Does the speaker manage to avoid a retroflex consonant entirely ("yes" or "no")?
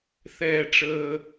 no